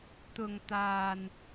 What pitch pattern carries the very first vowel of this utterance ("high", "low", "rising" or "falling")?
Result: low